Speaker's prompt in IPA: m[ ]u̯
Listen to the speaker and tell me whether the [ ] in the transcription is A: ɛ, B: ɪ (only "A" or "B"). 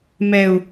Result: A